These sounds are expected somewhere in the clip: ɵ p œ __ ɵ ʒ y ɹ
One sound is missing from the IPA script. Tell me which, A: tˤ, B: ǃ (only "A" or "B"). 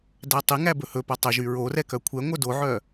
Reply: A